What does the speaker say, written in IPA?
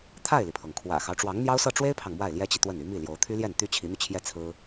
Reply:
t̪ʰa˥˩ɪ̯li˩pʰɤ˩ŋ kʰwä̰˨˩xɑ˦ʊ̯ ʈ͡ʂwɑ˧˥ŋn̪jɑ˥ʊ̯sɤ˥˩ ʈ͡ʂwe˥ɪ̯pʰɑ˨ŋ mwa˥˩ɪ̯ljɛ˥t͡ɕi˨ t̪wə˥˩n y˧˥mi˥˩ ljo˧˥ʊ̯ t̪ʰy˥ljɛ˥˩n t̪y˥t͡ɕʰi˧˥n̪y˧t͡ɕʰjɛ˥˩ t͡sʰɹ̩˥

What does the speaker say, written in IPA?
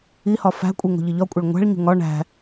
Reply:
ihɒ fæ̤kʷʼi ŋo̤ʎiʎɒkʷʼeɭ ŋʷæ̤ɭɲṳ ŋɒ ɳæ̤

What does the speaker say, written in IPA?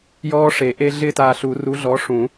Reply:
jɔː˦˥ʂe˨˩˦ʔe˦˥ ɮɪ˥˧taː˧ɬu˨˩˦ ru˨˥ɮɔ˨˥ ʂũ˨˩˦

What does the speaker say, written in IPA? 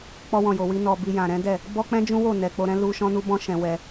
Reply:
k͡pɔ˧wɔ̃˨jo˨wi˧ nɔ˨ bi˧jã˨ ɾɛ̃˨˦dɛ˦˨ | bɔ˦ k͡pɛ̃˦d͡ʒũ˦wo˦˨ nɛ˧ k͡po˧ɾɛ̃˦ lu˦ ʃɔ̃˦nu˦bɔ̃˦ ʃɛ̃˧wɛ˧

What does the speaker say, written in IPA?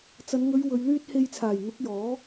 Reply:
t͡sɐ˨˧n ŋɵ˨˧ɥ wɵ˨˧ɥ lyː˧t̚he˨jt͡sʰaː˨˩j n̪ʊ˨˥k̚jɔː˨˥

